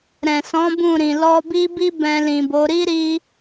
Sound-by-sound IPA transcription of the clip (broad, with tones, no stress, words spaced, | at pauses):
ɾɛ̃˨sɔ̃˨˦ bũ˦˨ɾĩ˨ lɔ˧bi˦bi˦ bɛ̃˧lĩ˨bo˨˦ ɾi˦ɾi˧